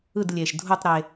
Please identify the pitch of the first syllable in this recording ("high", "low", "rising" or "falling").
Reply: falling